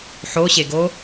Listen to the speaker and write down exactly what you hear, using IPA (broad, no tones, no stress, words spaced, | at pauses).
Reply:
ħoɕeɡo